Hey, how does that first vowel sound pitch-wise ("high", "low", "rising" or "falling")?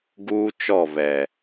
high